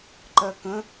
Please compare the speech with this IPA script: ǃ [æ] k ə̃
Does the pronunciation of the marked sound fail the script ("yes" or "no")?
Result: yes